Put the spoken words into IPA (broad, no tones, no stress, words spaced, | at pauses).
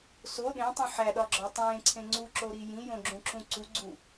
so ɗẽtˤũ ħæɗɒɡ͡ǁɒ tˤẽːǀʰẽ ŋ͡ǀuǁoɾi jĩjõɡ͡ǁũǁũ ǀuɡ͡ǀu